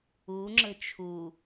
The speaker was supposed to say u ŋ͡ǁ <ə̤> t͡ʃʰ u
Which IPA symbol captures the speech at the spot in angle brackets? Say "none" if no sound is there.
ə̤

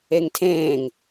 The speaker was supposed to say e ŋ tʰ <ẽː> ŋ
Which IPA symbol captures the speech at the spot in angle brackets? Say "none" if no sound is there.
ẽː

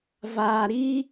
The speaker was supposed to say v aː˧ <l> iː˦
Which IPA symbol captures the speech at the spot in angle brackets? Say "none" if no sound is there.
ɾ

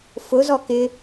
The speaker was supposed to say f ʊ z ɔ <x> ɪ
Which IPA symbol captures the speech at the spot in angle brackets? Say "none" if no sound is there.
k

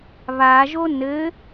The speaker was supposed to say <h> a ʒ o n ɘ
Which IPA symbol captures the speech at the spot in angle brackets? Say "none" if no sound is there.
β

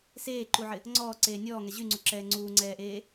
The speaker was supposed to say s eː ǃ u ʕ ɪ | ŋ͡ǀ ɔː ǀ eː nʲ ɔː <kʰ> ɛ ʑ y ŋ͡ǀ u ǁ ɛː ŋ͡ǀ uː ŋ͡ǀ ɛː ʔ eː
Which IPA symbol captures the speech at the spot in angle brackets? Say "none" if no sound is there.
ŋ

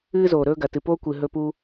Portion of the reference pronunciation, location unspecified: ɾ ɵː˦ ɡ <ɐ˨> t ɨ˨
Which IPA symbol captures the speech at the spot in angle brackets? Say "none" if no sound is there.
ɐ˨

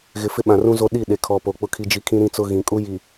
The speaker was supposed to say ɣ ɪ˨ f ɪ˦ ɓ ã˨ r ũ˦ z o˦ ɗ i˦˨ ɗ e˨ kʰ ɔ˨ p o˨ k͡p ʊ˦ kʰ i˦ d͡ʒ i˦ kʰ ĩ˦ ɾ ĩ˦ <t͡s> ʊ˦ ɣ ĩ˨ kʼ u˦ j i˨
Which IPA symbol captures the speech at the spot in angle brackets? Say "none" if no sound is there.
t͡s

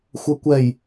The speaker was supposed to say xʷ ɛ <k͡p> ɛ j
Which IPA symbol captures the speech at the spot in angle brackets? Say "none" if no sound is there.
kʷ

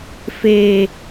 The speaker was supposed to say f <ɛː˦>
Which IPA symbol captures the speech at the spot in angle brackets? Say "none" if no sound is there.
eː˦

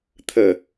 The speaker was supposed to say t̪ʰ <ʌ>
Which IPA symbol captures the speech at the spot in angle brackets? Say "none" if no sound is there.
ə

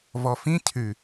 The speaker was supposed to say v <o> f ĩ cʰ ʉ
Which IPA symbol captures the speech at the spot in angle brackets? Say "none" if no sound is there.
ɔ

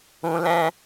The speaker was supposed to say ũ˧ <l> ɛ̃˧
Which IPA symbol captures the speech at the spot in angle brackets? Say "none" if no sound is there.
l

